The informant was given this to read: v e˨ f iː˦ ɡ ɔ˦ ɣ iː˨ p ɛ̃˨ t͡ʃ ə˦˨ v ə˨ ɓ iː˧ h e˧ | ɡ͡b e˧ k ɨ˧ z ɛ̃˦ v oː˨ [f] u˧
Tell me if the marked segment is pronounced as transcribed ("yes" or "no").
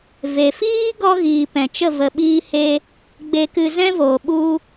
no